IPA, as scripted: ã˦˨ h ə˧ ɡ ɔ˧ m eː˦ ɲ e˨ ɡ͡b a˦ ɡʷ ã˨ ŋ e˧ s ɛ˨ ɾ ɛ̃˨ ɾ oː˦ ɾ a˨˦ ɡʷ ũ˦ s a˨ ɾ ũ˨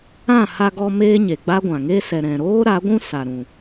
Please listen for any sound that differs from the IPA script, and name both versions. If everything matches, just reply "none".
ə˧ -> a˧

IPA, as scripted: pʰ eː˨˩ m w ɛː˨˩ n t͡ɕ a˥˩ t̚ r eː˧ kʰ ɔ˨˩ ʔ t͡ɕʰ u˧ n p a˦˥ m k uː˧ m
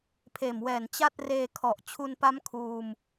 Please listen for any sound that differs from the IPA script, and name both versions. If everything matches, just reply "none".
k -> kʰ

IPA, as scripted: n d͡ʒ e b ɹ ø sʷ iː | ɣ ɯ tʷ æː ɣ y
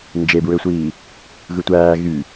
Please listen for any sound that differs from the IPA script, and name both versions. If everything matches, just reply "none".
none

